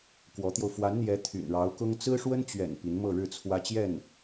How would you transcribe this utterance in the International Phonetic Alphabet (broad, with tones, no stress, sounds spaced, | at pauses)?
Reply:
k w ɔ˧˥ t̪ j o˧ ʊ̯ f w a˧˥ n n̪ j ɛ˧˥ t̪ʰ y̰˨˩ n ɻ ɑ˧˥ ʊ̯ k ʊ˥ ŋ t͡s ɹ̩˥ ʂ w ə˥ n t͡ɕ ɥ ɛ̰˨˩ n p i˧˥ n m ɤ˥˧ ɻ ɻ̩˥˩ t͡sʰ w ä˥ t͡ɕ j ɛ˥˩ n